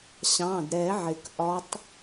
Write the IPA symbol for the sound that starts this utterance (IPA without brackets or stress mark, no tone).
ɕ